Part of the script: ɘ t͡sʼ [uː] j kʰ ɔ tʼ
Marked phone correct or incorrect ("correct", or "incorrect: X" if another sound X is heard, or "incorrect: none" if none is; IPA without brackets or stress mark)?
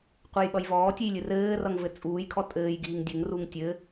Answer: correct